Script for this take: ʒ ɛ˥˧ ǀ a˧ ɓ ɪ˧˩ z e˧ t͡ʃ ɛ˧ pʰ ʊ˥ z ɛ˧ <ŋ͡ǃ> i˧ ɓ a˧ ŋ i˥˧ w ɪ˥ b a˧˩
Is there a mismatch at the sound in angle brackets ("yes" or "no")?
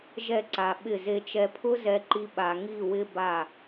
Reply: yes